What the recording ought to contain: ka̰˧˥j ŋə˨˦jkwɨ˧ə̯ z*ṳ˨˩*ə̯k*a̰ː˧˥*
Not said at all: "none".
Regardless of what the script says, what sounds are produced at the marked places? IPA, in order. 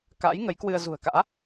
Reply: ṳ˨˩, a̰ː˧˥

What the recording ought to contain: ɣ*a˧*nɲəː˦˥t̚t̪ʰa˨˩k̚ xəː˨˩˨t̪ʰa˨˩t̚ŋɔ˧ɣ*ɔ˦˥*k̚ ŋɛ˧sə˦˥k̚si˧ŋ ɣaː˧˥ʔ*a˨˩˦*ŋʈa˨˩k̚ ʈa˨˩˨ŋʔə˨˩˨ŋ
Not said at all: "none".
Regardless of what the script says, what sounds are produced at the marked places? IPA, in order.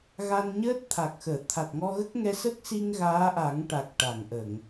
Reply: a˧, ə˦˥, a˨˩˦

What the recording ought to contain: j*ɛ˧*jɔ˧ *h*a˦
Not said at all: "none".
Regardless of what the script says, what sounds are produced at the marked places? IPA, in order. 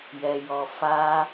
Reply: ɛ˧, f

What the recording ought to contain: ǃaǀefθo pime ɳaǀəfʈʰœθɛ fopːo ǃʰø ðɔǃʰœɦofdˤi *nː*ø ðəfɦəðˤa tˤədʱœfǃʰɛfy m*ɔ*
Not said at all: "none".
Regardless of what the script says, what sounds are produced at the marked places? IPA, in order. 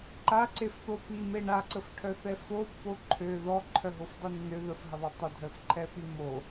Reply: nː, o

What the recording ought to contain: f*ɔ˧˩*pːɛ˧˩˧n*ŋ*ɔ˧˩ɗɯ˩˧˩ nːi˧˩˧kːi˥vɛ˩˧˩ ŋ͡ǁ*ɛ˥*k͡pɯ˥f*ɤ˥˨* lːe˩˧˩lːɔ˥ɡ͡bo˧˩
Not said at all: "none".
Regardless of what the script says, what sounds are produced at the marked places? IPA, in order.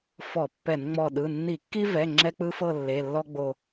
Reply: ɔ˧˩˧, ŋ͡m, ɛ˥, ɤ˥˨

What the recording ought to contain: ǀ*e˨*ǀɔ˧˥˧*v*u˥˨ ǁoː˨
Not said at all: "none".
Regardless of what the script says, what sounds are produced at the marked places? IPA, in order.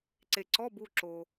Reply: e˨, b

